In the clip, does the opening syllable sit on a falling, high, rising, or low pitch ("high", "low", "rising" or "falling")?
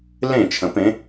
falling